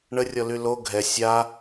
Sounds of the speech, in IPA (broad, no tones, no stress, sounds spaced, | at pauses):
ɳ ə rʲ ɔ l y l o ɡʱ ɛ sʲ a